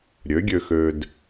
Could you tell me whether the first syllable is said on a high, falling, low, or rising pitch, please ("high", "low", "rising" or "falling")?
rising